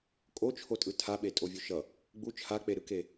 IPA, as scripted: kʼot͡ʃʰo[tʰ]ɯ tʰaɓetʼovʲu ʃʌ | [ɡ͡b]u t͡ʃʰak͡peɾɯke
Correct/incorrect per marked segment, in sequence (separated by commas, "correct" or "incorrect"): incorrect, correct